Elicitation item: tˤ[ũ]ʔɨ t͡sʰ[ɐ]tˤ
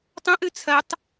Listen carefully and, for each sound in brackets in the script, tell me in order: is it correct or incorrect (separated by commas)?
incorrect, correct